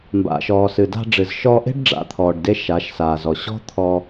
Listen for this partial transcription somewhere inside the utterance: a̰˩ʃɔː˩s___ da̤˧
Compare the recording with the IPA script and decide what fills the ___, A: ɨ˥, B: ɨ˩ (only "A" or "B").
B